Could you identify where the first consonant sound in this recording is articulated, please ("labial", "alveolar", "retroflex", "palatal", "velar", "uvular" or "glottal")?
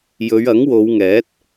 palatal